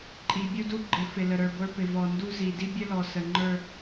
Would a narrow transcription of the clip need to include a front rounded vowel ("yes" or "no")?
no